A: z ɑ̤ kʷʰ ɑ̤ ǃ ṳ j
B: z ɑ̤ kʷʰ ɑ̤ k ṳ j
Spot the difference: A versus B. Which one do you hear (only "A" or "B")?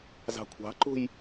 A